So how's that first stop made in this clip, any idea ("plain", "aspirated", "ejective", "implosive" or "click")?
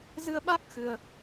implosive